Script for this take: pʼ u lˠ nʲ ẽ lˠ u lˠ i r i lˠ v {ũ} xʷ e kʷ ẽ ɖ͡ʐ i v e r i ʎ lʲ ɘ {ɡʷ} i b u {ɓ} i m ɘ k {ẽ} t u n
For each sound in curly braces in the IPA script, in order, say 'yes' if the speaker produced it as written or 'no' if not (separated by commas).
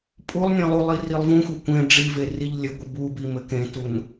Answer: yes, yes, no, yes